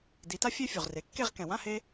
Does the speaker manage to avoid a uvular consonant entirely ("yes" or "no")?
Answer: no